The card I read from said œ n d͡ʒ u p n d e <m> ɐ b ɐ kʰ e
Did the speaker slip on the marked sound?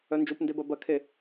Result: yes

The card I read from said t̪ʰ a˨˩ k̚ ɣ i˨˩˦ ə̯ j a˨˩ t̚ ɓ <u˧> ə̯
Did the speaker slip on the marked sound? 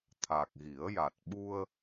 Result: no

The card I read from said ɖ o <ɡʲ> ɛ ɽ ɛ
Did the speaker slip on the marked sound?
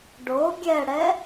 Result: no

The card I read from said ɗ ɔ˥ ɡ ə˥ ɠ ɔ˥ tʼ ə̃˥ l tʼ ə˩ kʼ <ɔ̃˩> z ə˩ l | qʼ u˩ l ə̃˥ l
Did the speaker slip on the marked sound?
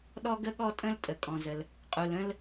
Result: no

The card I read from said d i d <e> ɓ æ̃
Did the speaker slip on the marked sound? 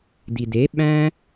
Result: no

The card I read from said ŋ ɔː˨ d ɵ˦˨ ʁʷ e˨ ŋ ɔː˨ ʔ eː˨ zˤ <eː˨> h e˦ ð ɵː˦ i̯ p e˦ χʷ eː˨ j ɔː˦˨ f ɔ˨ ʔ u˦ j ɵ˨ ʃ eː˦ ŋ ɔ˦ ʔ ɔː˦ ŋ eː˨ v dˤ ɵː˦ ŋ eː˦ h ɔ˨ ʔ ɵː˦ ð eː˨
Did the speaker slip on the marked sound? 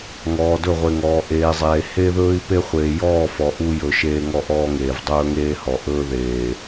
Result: no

